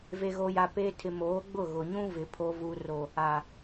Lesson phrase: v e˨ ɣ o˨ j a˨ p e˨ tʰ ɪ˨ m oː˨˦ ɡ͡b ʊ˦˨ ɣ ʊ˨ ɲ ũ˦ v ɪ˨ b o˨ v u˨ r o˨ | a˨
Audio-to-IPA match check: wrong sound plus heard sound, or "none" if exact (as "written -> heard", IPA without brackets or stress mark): b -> pʰ